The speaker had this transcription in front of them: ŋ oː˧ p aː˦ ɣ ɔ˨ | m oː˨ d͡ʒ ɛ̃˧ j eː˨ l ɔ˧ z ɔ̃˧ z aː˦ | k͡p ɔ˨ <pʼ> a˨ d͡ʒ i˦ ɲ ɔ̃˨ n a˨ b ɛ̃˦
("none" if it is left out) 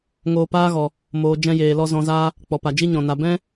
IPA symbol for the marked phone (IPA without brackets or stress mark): p